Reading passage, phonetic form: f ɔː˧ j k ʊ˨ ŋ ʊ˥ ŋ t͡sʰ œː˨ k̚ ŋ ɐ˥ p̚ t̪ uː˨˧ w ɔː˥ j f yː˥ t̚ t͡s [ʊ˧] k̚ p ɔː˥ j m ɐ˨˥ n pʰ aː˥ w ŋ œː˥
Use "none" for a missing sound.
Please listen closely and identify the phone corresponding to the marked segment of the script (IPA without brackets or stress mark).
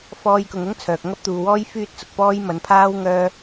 ʊ˧